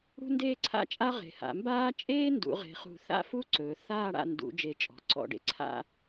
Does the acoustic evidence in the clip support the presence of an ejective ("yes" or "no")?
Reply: yes